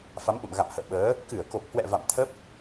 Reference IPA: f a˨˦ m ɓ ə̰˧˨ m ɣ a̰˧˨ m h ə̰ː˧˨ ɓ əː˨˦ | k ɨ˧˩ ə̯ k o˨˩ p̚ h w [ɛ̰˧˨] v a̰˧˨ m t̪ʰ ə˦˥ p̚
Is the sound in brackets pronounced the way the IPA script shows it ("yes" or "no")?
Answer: yes